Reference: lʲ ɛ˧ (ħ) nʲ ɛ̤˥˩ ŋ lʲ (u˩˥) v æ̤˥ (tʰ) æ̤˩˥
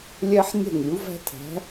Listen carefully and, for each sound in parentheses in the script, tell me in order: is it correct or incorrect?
correct, correct, correct

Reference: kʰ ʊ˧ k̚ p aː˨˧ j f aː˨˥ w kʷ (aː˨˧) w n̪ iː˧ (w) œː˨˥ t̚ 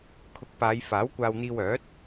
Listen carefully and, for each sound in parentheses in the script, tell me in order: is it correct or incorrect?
incorrect, correct

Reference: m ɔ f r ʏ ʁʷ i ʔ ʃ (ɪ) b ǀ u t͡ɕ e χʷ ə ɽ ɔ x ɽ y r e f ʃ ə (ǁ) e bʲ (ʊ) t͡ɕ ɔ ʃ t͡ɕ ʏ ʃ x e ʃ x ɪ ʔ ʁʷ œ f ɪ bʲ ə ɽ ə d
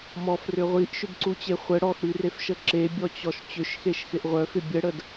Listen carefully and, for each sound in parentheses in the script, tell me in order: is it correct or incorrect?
incorrect, correct, incorrect

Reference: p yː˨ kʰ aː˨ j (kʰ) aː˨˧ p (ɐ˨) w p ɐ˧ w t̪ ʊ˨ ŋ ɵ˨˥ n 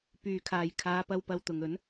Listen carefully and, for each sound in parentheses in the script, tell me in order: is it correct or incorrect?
correct, incorrect

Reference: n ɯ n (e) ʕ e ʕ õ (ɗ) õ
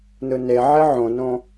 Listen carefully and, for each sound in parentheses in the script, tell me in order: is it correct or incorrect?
correct, incorrect

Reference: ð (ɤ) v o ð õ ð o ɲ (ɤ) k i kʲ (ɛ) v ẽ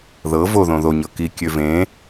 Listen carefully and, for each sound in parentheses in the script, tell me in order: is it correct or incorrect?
correct, correct, incorrect

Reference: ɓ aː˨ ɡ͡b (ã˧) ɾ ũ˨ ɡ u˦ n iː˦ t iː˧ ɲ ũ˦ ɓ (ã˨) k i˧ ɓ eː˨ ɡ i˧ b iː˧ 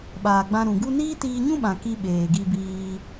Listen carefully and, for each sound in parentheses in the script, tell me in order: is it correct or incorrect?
correct, correct

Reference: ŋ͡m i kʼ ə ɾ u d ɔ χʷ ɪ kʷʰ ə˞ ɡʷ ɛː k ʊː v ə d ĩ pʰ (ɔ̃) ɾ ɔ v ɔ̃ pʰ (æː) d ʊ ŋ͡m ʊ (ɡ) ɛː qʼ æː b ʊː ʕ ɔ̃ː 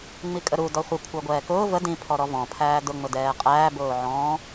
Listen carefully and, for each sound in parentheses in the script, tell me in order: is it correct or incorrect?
incorrect, correct, incorrect

